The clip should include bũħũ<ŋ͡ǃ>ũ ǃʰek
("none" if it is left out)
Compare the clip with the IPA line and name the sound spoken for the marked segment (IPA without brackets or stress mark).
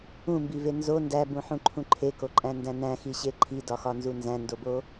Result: ǃʰ